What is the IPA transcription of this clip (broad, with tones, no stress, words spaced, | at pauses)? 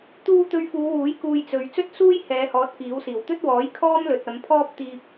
t̪uː˧ t̪ɵ˧ɥfuː˨˧wuː˨˥j kuː˧jt͡sɵ˨ɥ t͡sɵ˥t̚suː˥j hɛː˨˧hɔː˨˥t̚ kiː˨˥wsiː˨˩w t̪ɵ˥t̚wɔː˨˥j kʰɔː˥m lɵ˨t̚ɐ˨˧mpʰɔː˥p̚ t̪iː˧p̚